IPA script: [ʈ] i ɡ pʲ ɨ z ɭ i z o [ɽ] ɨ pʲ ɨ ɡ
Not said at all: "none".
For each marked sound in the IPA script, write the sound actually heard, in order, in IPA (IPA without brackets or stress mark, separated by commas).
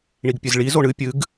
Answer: ɳ, ɳ